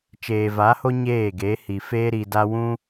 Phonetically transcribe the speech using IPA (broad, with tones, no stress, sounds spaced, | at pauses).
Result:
t͡ʃ eː˨ v a˨˦ h o˦ ɲ eː˦˨ ɡ e˨˦ h i˨ f eː˦ ɾ i˧ d a˦ w ũ˦